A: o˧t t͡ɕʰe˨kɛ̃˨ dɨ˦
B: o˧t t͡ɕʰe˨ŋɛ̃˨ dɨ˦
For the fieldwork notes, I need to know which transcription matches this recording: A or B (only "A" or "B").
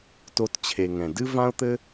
B